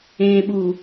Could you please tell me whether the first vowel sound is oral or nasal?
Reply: nasal